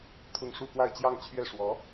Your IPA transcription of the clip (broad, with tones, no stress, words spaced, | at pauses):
t̪ʰʊ˥˧ŋ ʂu˥˧kwa˥˧ɪ̯t͡ɕjɑ˥˧ŋt͡ɕʰɥɛ˥˩ ʂwɔ˧˥